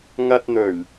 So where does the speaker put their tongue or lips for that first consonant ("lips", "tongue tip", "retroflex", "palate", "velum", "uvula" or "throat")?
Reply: velum